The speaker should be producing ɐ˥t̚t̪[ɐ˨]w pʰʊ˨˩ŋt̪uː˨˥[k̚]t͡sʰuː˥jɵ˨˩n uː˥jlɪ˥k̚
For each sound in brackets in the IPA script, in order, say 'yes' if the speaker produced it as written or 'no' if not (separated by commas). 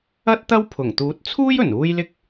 no, no